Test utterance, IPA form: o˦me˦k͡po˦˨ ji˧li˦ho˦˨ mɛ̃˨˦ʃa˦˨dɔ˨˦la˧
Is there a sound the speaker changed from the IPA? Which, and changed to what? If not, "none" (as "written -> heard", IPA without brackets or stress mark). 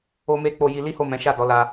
none